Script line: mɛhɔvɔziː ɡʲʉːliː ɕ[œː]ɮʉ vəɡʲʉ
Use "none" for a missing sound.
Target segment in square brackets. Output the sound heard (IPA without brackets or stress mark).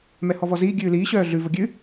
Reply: œː